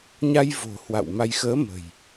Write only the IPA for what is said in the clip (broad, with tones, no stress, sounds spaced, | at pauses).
ɲ a˧ j v o̤˨˩ h w a̰˧˨ w m a˧ j x əː˨˦ m ə̤˨˩ j